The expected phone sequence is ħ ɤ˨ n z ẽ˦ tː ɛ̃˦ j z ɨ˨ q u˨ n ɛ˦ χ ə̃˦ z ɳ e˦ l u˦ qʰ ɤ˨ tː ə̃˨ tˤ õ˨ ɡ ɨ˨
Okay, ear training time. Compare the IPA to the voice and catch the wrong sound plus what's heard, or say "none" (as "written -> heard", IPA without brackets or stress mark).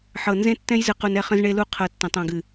none